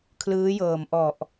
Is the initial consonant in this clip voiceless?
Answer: yes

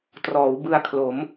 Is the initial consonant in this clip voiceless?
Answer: yes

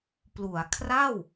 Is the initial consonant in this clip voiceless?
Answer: yes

